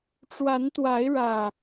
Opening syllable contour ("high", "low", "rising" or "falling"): rising